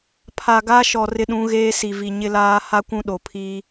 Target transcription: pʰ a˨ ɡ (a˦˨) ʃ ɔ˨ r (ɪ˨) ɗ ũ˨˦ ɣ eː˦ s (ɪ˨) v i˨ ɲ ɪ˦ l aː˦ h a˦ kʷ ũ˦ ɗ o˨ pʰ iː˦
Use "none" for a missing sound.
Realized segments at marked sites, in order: a˦, ɪ˦, i˨

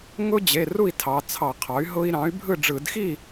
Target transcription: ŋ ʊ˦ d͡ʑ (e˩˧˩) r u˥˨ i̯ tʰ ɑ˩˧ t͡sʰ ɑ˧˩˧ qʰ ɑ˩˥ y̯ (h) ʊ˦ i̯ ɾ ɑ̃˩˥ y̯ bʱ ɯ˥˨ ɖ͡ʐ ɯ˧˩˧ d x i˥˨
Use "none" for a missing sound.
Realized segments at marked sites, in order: e˩˧˩, ɦ

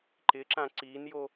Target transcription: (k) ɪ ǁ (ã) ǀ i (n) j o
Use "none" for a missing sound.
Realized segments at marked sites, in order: ǃ, ã, n

